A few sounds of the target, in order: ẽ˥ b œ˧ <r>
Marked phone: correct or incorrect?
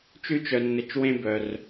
correct